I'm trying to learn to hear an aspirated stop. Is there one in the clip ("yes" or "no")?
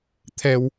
yes